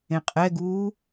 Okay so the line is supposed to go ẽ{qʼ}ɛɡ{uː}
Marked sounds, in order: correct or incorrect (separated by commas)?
correct, correct